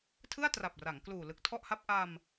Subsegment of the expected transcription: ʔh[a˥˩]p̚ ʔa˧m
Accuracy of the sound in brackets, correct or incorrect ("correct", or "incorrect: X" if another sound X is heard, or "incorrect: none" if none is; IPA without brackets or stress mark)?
correct